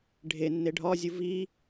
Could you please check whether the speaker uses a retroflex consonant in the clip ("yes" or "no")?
yes